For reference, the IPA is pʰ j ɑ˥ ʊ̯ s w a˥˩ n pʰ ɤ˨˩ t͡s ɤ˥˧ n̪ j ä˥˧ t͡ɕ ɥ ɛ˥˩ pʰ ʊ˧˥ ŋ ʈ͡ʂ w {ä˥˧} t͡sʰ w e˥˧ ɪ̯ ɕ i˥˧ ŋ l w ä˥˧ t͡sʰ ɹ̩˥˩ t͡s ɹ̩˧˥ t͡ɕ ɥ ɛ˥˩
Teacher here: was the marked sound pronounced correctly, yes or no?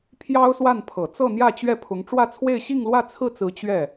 yes